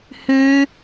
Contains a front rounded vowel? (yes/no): no